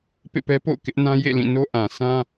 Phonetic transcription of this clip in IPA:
p ḛ˦˨ p ɛ˦ p o̰˦˨ ʊ̯ k ɪ˦ ʔ n ã˦ j ḛ˦˨ l ĩ˦˨ n o˦ ʔ ã˨ sʰ ã˦

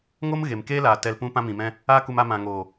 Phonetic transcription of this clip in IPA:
ŋ o˦ m ɣ e˨ m k eː˦ l a˨ t ɛ˧ l p ũ˧ p ã˧ m ĩ˨ m ɛ̃˧ | a˦ k u˧ m a˧ m ã˨ ŋ oː˨

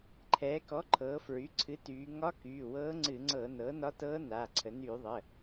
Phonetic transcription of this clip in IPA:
ǃʰ ɛː˩˧ k ɔ˩˥ ǃʰ ɤː˩˧ f ɹ y˩˧˩ ǀʰ ɨ˩˥ t yː˩˧ ŋ ɒ˧˥ k yː˩˧˩ w ɤː˧˥ ŋ͡ǀ ɨ˧˩˧ ŋ͡ǀ ɤ˧˩˧ n ɤː˩˥ n ɒ˧˥ t ɤː˧˥ n a˩˧˩ ǀʰ ə˩˧ n yː˧˩˧ ðˤ ə˩˧˩

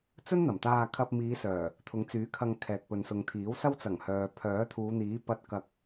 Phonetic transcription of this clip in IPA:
t͡s ɵ˥ n n̪ ɐ˨˩ m t̪ aː˧ kʰ ɐ˧ p̚ m iː˨˧ s œː˨˩ | t̪ʰ ʊ˨˧ ŋ t͡s yː˨˥ kʰ ɐ˧ ŋ kʰ ɛː˨ k̚ p ɵ˨ n s ʊ˨ ŋ t̪ʰ iː˨˥ w s ɐ˥ w t͡s ɐ˨˩ ŋ h œː˨ pʰ œː˨˥ t̪ʰ uː˨˧ n̪ iː˨˥ p ɐ˧ t̚ k ɐ˧ k̚

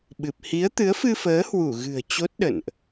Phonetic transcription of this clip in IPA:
ɓ ɨ˨˩ p̚ h i˨˦ ə̯ t̪ ɨ˨˦ ə̯ f ɨ˧ f əː˨˦ h w u˧˩ ɣ ɨ̤˨˩ ə̯ t͡ɕ o˦˥ t̚ ɗ ə̰˧˨ n ʔ

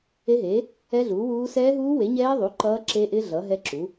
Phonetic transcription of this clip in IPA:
e˦˥ ɦ eː˨˥ | ɛ˦˥ ɮ uː˨˥ w uː˦˥ s ɛː˦˥ ɦ uː˦˥ w e˨˥ ɲ ɛː˦˥ ðˤ u˨˥ ǃ ʌː˦˥ ǁ e˦˥ ʔ ɪ˦˥ ɮ ʌ˨˥ ɦ ɛ˦˥ ǁ u˨˥

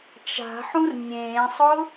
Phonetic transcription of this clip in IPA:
t͡ʃ a̤ ħ ũ r nʲ ẽː sˤ ʊ

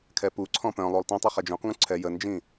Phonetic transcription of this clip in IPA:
kʰ ɛ p u ǀʰ ɔ̃ p œ̃ lˠ o lˠ t ĩ tˤ i χ ɛ d͡ʒ õ q ŋ ũ ǀʰ ɛ j ə n d͡ʒ ĩ

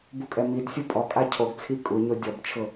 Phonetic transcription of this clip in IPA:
b u kʼ ɛ m i d sʲ u pʼ ɔ kʼ a cʰ o ɡ t͡sʰ i kʼ u ɲ o dʲ ɔ b t͡ʃʰ ʊ

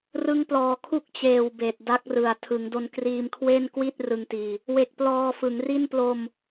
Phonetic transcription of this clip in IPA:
r ɯ˦˥ ŋ p l ɔː˨˩ kʰ u˥˩ k̚ t͡ɕ eː˨˩ w b eː˨˩ t̚ d a˦˥ k̚ r ɯ˩˦ a̯ tʰ ɯ˩˦ ŋ d o˧ n k r iː˧ m kʰ w e˥˩ n k w i˥˩ t̚ r ɯ˧ ŋ t iː˧ | w e˨˩ k̚ p l ɔː˧ f ɯ˩˦ ŋ r i˥˩ n p l o˧ m

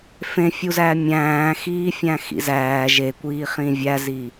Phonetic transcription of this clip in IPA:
f ẽ fʲ u z æː mʲ æ̃ː x iː fʲ æ̃ x ḭ z æː ʒ e kʷ iː χ ĩ vʲ æ z i

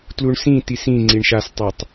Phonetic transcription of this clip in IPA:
t l u ɳ s ĩ t i s ĩ ŋ͡ǀ i ɳ ʃ a s tˤ a tˤ

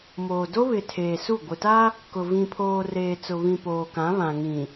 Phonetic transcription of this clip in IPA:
m oː˨ d o˦ β ɪ˨ tʰ eː˨ s u˦˨ ɡʷ ɪ˨ t a˦ | k ʊ˨ v ĩ˨ pʰ oː˨ r eː˨ t͡s ʊ˨ β ĩ˨ p oː˨ k ã˨˦ β ã˨ ŋ ĩ˨

